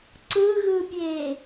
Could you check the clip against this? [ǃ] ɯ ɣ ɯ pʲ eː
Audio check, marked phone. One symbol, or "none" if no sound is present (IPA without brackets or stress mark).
ǀ